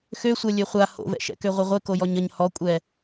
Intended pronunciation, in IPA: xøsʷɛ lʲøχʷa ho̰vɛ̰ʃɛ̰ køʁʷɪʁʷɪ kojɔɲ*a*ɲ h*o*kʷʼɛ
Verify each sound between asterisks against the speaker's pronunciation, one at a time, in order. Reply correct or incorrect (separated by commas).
incorrect, incorrect